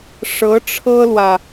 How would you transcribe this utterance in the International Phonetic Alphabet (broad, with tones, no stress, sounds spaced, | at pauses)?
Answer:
ʂ ɤ˧˥ ʈ͡ʂʰ ɤ˥ l w ä˨